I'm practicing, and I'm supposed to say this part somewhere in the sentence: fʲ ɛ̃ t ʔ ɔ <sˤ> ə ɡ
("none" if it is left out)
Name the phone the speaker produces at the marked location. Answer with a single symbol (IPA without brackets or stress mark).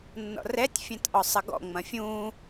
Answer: sˤ